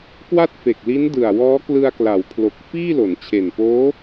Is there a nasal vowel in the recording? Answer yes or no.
no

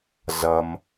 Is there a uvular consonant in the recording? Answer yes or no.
no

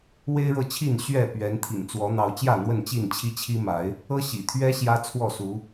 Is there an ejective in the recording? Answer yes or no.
no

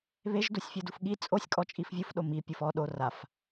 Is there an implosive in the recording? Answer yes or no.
yes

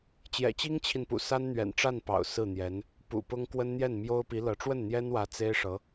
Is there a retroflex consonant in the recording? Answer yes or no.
yes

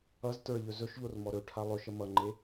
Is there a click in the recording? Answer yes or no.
yes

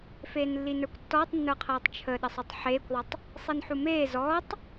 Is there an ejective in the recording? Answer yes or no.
no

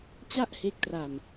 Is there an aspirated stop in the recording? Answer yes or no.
no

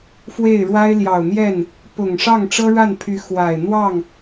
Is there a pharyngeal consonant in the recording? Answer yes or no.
no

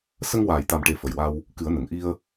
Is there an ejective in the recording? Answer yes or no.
no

